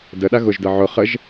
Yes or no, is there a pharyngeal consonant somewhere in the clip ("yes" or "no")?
yes